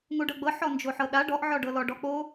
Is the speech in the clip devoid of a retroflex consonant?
no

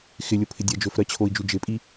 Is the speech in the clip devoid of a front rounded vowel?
yes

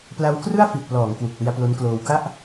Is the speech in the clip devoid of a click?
yes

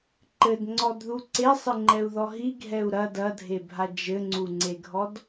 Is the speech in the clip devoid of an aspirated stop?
yes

